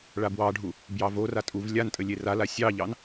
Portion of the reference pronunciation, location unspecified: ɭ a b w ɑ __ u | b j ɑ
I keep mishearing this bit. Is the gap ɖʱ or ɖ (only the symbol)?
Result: ɖʱ